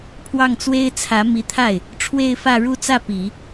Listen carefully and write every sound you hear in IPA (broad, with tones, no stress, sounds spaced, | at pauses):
pʰ w ɑ˥˩ ŋ t͡s w e˥ ɪ̯ t͡sʰ ä˧˥ m i˧˥ t̪ʰ a˥˩ ɪ̯ | ʈ͡ʂʰ w e˥˧ ɪ̯ f ä˥˧ ɻ u˥˧ t͡s ä˥˩ p i˨˩˦